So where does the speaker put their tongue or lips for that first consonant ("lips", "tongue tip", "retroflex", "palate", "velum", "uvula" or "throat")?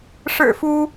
retroflex